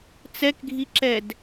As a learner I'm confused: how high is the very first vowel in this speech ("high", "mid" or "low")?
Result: mid